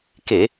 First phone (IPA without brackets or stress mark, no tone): k